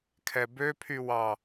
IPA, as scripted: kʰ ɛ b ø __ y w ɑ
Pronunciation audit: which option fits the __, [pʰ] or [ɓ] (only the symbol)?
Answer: pʰ